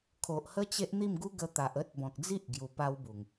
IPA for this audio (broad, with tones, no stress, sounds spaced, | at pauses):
kʰ o˨ ʔ h ə˦ t͡ɕ e˦ ʔ n̪ i˥˧ m ɡ u˦ ɡ ə˧ t̪ a˨ ʔ ə˦ t̚ b ɔ̃˨ k̚ d͡z i˦ ʔ ɡ j u˧ p a˦ w b u˨˩ ŋ